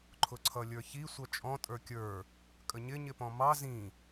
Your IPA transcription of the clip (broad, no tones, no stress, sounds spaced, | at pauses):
ǃʰ ʊ ǀʰ ʌ lʲ ə˞ ç i sʷ ʌ t͡ʃʼ ɔ̃ tʼ ə˞ kʲ ə˞ | kʼ ə ɲ ɪ ɲ ɪ p ɔ̃ m ɑ z ĩ